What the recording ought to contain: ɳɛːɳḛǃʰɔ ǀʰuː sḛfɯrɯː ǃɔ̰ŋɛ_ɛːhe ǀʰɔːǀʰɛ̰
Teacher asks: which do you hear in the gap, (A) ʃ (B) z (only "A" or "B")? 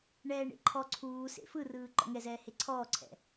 B